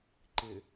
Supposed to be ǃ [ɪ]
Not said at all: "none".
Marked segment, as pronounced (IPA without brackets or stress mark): ɪ